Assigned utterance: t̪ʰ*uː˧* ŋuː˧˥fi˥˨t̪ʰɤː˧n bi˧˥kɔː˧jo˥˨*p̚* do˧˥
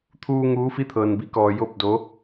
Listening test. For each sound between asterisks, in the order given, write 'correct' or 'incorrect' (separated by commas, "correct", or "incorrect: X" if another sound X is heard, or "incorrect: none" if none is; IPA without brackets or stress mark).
correct, correct